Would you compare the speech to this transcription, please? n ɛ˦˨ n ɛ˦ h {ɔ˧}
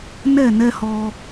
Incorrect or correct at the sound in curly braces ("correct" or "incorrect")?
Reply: correct